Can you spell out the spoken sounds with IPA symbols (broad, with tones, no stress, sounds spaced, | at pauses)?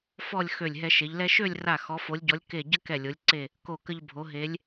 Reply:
f ɔ˥˧ lʲ x ø˧˩ lʲ ɦ ɛ˧ ʃ e˩˧ ʎ l ɛ˥ ʃ ø˥˧ lʲ r a˧˩ x ɔ˩˧ f o˩˧ lʲ ɟ ɔ˩˧ lʲ k e˧˩ ɟ ə˥ k ɛ˧˩ lʲ o˩˧ lʲ ǀ e˧˩ | k o˧˩ k ə˧ ʎ bʱ o˩˧ ɦ e˩˧ lʲ